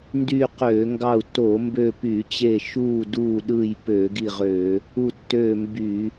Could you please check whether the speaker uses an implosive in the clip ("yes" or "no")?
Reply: yes